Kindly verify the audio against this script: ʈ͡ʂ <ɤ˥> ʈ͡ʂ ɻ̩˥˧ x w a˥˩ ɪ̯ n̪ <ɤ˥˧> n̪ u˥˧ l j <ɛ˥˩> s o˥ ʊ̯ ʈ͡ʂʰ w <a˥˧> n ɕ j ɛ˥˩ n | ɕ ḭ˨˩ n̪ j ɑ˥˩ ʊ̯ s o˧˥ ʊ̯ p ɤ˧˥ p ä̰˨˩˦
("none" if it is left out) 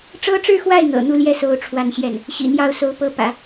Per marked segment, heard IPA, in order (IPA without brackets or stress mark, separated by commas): ɤ˥, ɤ̰˨˩, ɛ˥˩, a˥˧